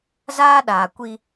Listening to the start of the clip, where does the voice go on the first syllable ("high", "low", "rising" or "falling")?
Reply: high